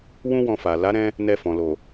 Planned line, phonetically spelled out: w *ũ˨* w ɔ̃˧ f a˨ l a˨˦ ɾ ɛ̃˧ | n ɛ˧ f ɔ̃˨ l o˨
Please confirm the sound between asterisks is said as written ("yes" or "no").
no